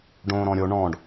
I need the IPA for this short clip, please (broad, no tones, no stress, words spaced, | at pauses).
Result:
ɖõːɾɔ̃ɾʲo ɳɔ̃ɖ